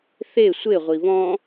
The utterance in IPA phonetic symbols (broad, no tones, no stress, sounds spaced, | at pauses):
θ e sʷ e ʁʷ i β ɔ̃